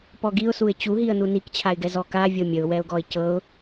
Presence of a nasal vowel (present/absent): absent